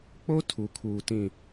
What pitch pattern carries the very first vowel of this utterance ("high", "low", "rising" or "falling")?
high